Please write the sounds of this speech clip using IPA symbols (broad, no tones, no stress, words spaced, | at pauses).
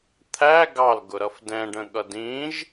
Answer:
t̪ʰæ ɡɑlɡʊɾʌf dɛ̃ɖə̃ɠʌd ĩʒ